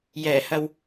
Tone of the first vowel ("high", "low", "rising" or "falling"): low